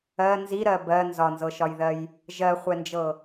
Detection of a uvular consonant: present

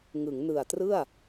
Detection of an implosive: absent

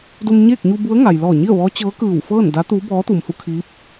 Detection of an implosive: absent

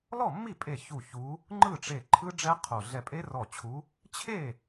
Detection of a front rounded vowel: absent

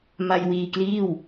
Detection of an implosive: absent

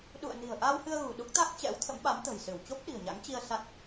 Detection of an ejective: absent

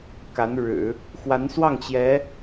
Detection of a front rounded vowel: absent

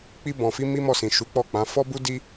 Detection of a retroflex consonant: absent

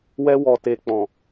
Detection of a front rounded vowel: absent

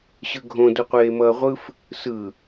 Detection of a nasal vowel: present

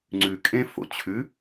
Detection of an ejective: present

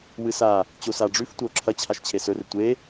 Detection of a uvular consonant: absent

